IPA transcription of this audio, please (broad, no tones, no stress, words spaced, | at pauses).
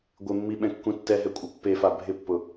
ɡʷɪmːi ɓɛ̃kːũtːɛɦɛ kʷʼɪpːefa bʱɪpːʊ